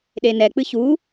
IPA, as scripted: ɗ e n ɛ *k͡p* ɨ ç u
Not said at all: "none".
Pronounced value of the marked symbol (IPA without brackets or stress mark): k͡p